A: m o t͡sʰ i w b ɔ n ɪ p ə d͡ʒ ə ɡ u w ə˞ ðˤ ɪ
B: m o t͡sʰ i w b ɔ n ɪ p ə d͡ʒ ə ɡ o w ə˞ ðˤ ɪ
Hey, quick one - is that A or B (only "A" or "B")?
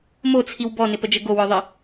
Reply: B